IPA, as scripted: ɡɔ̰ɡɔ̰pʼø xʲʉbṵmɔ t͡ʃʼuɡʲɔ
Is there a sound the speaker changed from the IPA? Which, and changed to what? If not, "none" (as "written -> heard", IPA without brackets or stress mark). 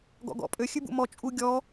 none